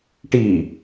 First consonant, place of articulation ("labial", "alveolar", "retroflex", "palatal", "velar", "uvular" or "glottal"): retroflex